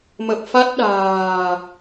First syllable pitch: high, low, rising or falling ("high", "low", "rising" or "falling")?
low